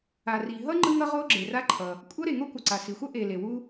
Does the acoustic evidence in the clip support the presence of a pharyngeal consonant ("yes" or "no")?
no